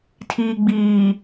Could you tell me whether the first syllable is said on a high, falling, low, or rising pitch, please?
low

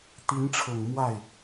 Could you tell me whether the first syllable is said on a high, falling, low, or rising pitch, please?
rising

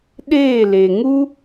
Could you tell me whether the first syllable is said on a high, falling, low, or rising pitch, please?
falling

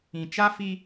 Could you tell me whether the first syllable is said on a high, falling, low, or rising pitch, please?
low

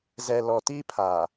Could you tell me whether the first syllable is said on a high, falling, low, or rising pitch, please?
low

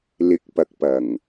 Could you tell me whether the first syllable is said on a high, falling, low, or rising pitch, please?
rising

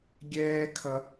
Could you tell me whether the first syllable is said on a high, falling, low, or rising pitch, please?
high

